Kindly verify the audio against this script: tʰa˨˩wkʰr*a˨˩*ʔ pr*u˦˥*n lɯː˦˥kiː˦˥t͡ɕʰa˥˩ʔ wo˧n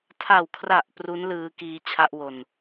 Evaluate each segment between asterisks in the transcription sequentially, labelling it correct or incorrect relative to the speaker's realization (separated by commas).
correct, correct